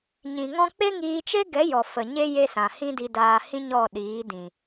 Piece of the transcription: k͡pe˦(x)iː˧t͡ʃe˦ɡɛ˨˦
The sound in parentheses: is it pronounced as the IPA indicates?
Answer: no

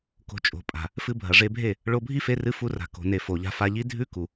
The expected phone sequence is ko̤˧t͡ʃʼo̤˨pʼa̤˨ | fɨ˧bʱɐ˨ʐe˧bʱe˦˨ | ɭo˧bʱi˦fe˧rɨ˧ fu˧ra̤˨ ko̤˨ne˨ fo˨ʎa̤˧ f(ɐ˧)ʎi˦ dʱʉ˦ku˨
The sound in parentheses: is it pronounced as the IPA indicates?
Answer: no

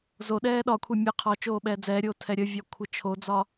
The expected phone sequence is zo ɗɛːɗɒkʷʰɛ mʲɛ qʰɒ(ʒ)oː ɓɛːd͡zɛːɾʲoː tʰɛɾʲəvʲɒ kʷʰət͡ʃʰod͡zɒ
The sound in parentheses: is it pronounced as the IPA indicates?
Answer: no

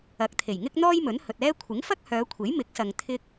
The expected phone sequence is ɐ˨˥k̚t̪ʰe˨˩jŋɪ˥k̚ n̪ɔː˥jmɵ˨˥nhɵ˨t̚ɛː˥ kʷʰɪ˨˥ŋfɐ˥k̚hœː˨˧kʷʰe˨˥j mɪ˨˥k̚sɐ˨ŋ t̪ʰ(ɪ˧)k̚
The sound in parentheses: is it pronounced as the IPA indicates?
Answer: yes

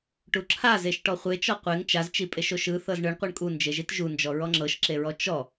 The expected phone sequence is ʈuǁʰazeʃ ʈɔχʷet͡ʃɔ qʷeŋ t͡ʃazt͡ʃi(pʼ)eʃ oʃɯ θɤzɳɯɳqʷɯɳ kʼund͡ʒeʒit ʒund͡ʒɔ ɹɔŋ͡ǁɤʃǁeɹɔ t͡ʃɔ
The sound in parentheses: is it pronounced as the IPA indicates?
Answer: yes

